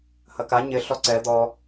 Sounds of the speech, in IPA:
hɐka ɲɪ ɬɔǀɛ d̪ɔ

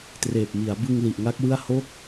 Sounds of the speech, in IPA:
treː˨˩p̚mi˩˦a̯bɯ˧ŋ li˨˩ʔ ŋa˦˥k̚wɯ˥˩a̯ ho˦˥k̚

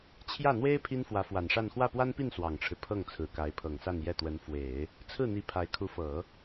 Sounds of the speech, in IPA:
t͡ɕʰjä˥˩n̪we˥ɪ̯ pʰi˥nfwä˧˥fwa˨˩nʂa˥˧n xwä˥˩pwa˥npi˥˩n swɑ˨˩ŋʈ͡ʂʰɻ̩˦ pʰɤ˥˩ŋ t͡sʰɹ̩˨˩ka˧˥ɪ̯pʰɤ˨˩ŋsa˥˧n jɛ˥˩t̪wə˧˥n fwe˨˩˦ɪ̯ | t͡sʰɹ̩˥˩n̪i˧˥ pʰa˧˥ɪ̯kʰu˧˥fɤ˨˩˦

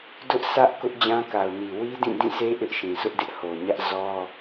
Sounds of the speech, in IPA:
dʊ˦ʔsʰä˦ʔ kʊ˦ʔd͡ʑã˦ka˨ʊ̯ni˨ wi˦dĩ˦˨dĩ˦˨sʰe˦ ʔɪ˦ʔʃĩ˨ sʰʊ˦ʔdɪ˦ʔho˨ɲä˦ʔ zɔ˦

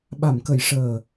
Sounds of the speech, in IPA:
ɓa˨˩˨mkə˨˩˨j ʂəː˨˩

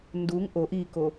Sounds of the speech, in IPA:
nduŋ ʔoʔ iko

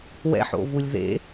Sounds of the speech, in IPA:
wɛ̰ħo̰vulʲ ðḛ

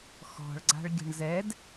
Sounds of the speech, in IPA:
xɔ̤ɭɡ͡ǀa̤ɭɡʲə̤ɳ zɛd

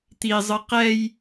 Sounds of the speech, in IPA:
t̪izˤɯ qɛj

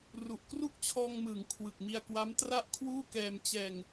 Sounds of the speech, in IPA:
ru˨˩ʔkru˥˩k̚t͡ɕʰɔː˧ŋmɯː˩˦ŋ kʰwɯ˨˩k̚mi˧a̯kwa˦˥m tra˥˩ʔ kʰwuː˥˩kɛː˧mt͡ɕɛː˧ŋ

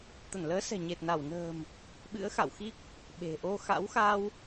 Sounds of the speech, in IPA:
t̪ə˧˩nləː˨˦sɛ̤˨˩ɲe˨˩t̚ na˧˩wnə̤ː˨˩m | ɓɨ̰˧˥ə̯xa̰˧˨wxi˦˥k̚ | ɓe̤˨˩ʔo˧ xa̰˧˥wxa˧w

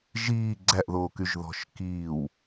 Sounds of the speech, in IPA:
ʒiː ɡ͡ǀæʔðoːkyʒ ðɔ̤ʃkiːw

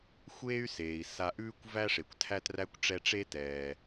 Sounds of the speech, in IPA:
xʷeː˦y̯ seː˩i̯ sa˨ʔʉː˦kʷ væ˦ʂe˩kʷtʰæ˦træ˦kʷ ʈ͡ʂɛ˦ʈ͡ʂe˥tɛː˨

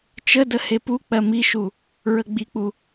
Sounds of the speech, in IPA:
t͡ʃədə hepuk͡pɜ miʃu | ɹəɡ͡bik͡pu

